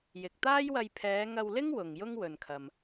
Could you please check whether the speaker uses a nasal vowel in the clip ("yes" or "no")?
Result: no